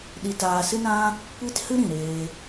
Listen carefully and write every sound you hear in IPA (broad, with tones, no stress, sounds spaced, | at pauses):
ɗ i˧ t aː˧ s ɨ˦ n ã˦ | kʷ i˦ t h ɨ˦ ɾ ĩ˨ ɾ eː˧